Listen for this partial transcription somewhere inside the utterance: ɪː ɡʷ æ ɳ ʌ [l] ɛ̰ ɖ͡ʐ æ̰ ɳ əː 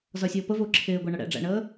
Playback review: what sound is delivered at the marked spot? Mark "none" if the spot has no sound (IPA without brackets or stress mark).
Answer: ɽ